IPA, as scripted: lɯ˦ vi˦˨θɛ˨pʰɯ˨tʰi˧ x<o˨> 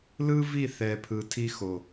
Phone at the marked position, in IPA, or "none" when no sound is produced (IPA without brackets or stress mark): o˨